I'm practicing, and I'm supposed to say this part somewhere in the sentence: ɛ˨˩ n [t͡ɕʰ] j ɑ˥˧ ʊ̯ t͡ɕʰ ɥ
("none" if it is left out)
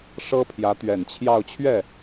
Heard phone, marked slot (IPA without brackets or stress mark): t͡ɕʰ